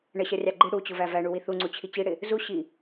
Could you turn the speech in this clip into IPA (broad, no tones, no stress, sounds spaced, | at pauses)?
ɳ ə ɕ ʌ rʲ ɑ ɡ͡ǃ i ɽ u t͡ɕ ʊ v æ v æ ɳ u w i θ u ŋ͡ǀ u t͡ɕʰ i t͡ɕ i ɽ ɪ | z u ɕ i